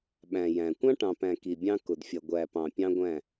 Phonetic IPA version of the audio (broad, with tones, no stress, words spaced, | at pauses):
ɓæ̃˨ jæ̃˨ kʷɑ̃˦ʈɑ̃˨pæ̃˨ ki˨bʲɑ̃˦ kʊ˨dfʲʌ˨ ɡʷæ˨ pɑ̃˨ pʲɑ̃˦ɡʷæ̃˦˨